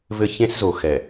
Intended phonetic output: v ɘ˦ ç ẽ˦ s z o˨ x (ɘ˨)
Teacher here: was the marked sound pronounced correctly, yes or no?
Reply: no